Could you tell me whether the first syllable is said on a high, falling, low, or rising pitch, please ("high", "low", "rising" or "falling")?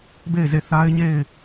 falling